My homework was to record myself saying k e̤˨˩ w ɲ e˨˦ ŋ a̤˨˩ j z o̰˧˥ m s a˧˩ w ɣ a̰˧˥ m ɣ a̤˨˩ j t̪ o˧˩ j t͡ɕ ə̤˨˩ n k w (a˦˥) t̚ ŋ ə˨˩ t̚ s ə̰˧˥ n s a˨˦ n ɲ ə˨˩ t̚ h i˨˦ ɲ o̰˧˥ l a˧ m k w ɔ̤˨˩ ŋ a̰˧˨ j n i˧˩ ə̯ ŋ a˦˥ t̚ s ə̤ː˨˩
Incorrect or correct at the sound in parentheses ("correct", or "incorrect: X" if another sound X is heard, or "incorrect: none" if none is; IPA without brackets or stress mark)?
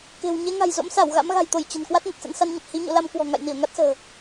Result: correct